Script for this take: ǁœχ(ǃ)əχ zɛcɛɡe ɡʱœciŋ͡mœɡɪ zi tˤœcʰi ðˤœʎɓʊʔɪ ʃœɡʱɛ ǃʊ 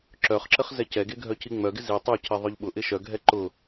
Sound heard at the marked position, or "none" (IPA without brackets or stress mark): ǁ